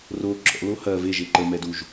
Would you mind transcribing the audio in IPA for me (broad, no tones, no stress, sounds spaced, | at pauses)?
r o ǁ ɔ̰ l o h ɐ v e ʒ e ǃ ə m ɛ d u ʒ